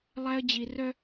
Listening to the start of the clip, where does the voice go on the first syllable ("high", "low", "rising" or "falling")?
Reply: high